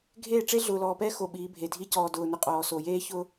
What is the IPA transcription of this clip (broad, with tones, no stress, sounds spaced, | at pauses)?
ɡʱ eː˦˨ ʈ͡ʂ e˦ ɮ ʊː˨ l ɔː˨ p ɛː˦ x o˨ ɓ iː˨˦ bʱ e˨ dʱ i˦ c ɔː˨ d ʊː˨ n ʊ˨ qʼ ɔː˨ s o˨ j eː˦ ç ʊ˦